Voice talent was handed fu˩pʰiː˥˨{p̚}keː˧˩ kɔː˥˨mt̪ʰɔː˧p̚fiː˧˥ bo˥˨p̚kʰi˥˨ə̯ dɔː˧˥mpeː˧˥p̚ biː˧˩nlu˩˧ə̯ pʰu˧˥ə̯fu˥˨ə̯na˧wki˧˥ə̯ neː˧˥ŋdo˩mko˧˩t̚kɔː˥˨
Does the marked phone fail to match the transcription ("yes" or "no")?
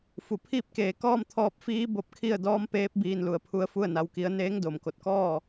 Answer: no